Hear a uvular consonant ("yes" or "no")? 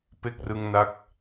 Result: no